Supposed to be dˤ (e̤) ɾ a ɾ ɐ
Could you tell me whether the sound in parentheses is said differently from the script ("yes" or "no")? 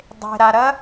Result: no